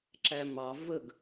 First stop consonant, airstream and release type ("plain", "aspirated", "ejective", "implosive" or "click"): click